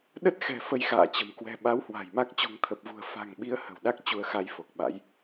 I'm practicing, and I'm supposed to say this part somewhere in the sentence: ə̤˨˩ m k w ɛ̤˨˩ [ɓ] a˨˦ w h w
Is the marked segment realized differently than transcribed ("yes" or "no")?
no